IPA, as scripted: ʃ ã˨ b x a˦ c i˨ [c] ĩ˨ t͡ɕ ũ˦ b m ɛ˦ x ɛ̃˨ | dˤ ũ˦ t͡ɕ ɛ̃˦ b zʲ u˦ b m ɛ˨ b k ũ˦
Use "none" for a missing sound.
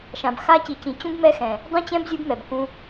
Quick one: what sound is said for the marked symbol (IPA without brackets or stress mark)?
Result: c